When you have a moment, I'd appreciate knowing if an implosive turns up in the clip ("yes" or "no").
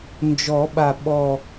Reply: yes